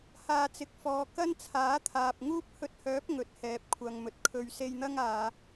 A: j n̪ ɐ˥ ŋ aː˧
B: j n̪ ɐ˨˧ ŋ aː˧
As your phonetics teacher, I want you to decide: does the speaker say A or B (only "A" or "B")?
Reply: A